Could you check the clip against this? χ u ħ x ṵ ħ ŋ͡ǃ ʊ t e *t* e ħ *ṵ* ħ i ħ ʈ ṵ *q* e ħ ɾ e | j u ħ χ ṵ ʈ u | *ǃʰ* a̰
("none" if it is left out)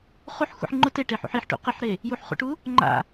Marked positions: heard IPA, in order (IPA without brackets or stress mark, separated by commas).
ʈ, ṵ, q, ŋ͡ǃ